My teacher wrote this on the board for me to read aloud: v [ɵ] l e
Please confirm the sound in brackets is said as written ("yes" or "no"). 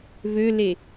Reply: no